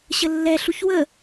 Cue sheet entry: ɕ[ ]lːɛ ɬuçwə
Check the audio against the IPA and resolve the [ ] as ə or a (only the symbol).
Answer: ə